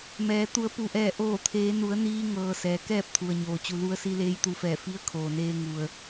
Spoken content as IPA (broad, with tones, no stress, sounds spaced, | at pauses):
m ɛː˩˧ t̪ u˩˧ ə̯ p u˩ ʔ ɛː˧˩ ʔ oː˧˩ t̪ʰ eː˩˧ n u˩˧ ə̯ n iː˧ ŋ ɤː˩ s ɛː˩ k ɛː˥˨ p̚ t̪ʰ u˩ ə̯ ɲ oː˩ t͡ɕ u˩ l u˧ ə̯ s i˧ l eː˧˥ j t̪ u˧ f ɛː˧˩ f i˧˥ ə̯ kʰ oː˩ n eː˧ ŋ u˩ ə̯